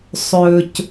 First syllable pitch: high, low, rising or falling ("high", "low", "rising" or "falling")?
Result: low